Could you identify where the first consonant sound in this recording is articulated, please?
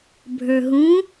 labial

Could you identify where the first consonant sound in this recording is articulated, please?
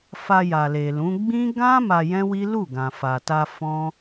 labial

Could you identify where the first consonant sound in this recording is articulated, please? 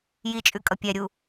palatal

